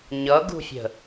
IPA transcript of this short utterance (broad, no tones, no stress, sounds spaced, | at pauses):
ɲ ʌ ɡ ṳ fʲ ə̤